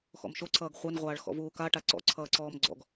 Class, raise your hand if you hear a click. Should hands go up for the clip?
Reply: yes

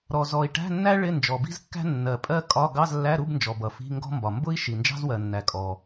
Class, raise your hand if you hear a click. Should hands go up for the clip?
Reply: no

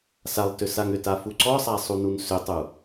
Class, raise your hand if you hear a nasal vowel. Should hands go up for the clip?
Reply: no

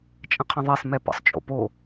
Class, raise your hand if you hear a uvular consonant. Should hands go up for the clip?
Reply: yes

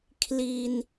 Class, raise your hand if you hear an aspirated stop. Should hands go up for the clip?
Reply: yes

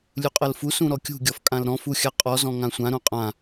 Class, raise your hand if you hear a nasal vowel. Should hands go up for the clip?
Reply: yes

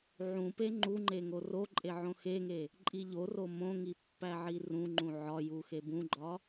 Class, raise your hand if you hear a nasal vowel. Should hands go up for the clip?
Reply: yes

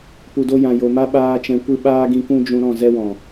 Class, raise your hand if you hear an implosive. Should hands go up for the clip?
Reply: yes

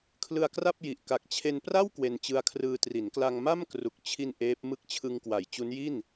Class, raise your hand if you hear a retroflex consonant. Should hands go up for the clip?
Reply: no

